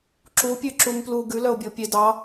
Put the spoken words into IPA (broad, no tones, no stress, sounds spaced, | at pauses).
ǁ u pʲ ʉ ǁ u m p l u ɡ ʉ l œ o̯ bʲ o pʲ e d ɑ